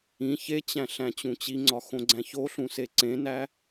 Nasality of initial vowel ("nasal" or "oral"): nasal